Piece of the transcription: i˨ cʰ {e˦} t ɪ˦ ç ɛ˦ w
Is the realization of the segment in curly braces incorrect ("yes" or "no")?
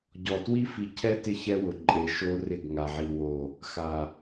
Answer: yes